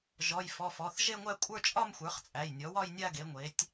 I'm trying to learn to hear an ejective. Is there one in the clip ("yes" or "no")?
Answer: yes